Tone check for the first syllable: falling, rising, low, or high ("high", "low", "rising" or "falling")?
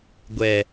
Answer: low